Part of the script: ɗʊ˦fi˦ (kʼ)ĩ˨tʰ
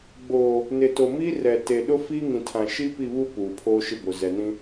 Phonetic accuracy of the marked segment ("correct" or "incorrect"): incorrect